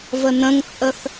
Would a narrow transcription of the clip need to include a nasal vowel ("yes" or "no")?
yes